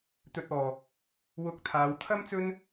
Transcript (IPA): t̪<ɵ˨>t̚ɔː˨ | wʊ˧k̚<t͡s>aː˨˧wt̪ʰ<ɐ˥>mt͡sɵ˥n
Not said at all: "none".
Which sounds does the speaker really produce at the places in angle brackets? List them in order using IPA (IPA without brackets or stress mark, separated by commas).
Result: ɵ˨, t̪ʰ, ɐ˥